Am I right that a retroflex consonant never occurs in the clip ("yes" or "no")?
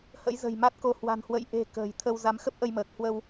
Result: yes